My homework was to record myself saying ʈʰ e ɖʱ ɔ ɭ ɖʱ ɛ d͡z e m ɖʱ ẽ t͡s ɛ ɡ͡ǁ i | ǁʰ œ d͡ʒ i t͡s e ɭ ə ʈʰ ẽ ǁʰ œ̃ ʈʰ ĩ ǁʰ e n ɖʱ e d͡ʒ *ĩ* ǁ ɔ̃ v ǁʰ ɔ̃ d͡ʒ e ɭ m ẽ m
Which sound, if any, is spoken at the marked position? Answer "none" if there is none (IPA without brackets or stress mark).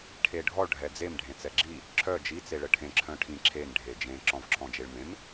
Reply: ẽ